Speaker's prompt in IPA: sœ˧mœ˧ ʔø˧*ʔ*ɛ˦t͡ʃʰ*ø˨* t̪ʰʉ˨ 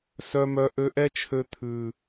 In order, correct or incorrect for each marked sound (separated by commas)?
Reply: correct, incorrect